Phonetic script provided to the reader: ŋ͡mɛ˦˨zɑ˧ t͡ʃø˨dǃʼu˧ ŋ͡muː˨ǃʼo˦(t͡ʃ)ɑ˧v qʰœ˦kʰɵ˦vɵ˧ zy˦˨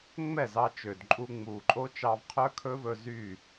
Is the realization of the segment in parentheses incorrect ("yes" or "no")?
no